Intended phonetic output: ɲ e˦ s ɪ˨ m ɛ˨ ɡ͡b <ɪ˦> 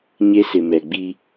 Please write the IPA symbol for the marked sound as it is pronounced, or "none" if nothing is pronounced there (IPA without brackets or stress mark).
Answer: i˦